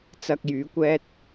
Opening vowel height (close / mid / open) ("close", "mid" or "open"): open